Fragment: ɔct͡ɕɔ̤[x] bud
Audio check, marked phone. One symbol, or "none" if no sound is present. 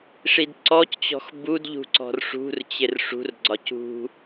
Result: x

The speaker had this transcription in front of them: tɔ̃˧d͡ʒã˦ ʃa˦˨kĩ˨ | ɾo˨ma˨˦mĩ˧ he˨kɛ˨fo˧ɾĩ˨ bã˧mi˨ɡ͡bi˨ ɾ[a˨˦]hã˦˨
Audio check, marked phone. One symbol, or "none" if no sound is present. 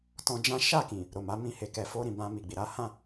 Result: a˨˦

